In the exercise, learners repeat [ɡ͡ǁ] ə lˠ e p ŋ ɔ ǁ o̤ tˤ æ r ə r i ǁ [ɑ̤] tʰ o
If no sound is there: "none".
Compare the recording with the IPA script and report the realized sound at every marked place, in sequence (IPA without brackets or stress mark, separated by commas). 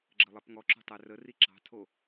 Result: ɡ͡ǁ, ɑ̤